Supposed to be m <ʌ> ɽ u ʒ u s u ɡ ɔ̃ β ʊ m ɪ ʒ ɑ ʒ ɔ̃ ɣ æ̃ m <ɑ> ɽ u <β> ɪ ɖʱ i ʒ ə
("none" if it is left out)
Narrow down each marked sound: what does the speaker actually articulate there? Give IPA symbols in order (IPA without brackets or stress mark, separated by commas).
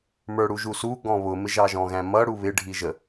ə˞, ʌ, β